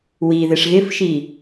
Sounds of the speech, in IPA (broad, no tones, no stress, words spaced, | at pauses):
wi ðɪʂɣɪfʃi